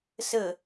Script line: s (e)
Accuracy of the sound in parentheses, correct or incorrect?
incorrect